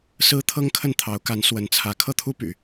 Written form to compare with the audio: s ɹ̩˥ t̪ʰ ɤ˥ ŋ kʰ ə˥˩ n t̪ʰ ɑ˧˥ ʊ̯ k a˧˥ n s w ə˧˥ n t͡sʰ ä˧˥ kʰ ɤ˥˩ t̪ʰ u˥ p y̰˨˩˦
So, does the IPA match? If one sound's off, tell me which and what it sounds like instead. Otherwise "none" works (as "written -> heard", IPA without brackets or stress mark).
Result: none